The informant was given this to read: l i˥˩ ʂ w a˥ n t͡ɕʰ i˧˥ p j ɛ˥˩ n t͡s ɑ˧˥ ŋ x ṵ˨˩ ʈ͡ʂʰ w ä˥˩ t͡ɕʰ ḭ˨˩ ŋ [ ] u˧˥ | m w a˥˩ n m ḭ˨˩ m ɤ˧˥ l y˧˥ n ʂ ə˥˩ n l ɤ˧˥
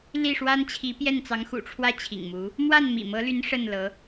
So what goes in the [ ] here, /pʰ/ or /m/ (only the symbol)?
m